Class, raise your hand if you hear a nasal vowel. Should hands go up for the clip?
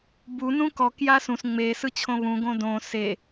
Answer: yes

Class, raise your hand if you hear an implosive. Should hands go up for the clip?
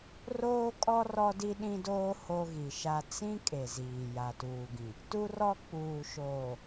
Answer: yes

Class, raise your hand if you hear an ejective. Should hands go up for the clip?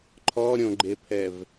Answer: no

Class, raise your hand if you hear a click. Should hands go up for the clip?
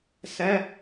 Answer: no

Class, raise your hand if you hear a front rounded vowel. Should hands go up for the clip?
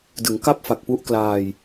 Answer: no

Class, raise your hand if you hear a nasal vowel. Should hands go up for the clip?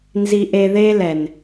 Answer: no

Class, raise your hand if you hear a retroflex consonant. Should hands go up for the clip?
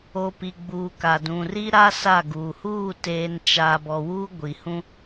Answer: no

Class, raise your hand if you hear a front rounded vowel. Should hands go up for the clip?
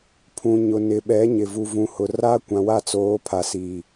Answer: no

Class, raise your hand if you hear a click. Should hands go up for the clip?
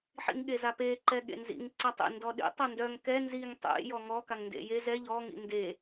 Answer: yes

